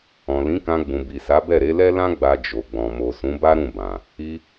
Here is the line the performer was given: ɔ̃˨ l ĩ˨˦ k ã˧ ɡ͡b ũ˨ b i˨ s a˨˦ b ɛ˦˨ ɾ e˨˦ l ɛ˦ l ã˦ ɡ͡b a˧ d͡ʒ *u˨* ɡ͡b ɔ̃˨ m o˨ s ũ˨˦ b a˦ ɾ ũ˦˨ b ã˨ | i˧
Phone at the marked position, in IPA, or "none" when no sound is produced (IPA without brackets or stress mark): o˨